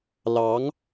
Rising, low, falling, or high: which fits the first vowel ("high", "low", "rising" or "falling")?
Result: rising